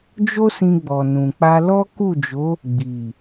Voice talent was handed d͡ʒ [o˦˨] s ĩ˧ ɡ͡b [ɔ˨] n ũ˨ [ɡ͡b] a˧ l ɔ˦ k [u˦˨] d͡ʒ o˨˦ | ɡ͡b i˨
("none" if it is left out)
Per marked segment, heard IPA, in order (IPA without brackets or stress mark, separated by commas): o˦, ɔ˨, k͡p, u˦˨